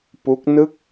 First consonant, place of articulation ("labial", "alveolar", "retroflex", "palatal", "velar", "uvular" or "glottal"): labial